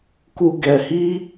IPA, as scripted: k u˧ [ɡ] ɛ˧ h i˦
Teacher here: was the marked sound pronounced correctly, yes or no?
yes